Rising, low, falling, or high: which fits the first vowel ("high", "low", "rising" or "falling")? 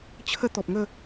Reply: high